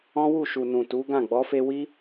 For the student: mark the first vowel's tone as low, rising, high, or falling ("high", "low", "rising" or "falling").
high